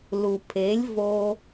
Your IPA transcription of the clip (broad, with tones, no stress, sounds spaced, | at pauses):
l u˨ pʰ e˨˦ lʲ v o˧